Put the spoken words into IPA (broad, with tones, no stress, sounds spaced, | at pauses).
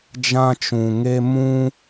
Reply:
d͡ʒ ã˧ t͡ʃ ũ˨ ŋ e˧ m ũ˧